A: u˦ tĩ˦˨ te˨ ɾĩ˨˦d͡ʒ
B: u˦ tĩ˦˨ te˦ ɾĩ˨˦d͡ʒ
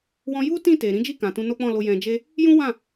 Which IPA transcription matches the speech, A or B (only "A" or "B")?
A